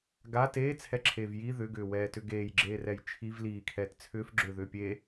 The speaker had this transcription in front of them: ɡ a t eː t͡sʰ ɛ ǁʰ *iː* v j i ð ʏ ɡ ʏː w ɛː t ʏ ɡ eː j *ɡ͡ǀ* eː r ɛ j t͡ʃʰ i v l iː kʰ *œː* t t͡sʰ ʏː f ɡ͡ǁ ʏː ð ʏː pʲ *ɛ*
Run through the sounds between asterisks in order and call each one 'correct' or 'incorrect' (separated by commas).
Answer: incorrect, incorrect, incorrect, incorrect